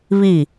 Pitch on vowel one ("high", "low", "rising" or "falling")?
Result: falling